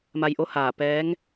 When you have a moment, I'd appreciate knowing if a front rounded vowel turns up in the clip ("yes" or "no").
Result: no